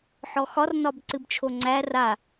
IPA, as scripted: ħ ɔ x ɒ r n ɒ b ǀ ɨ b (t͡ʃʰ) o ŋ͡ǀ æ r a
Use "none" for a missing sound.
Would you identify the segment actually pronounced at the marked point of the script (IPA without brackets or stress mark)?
t͡ʃʰ